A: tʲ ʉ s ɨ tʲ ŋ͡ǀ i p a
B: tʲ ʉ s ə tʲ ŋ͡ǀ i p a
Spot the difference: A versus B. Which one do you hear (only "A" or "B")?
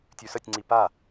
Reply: B